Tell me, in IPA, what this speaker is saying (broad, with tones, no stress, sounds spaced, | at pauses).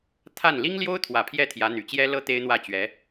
t̪ʰ a˥˩ n l i˥ ŋ l j o˥ ʊ̯ t̪ʰ w ä˨˩ pʰ j ɛ˥˩ t̪ʰ j ä˧˥ n̪ y˨˩ t͡ɕ j ɛ˥ l ɤ˥ t̪ e˥ ɪ̯ n̪ w ä˥˩ t͡ɕ ɥ ɛ˧˥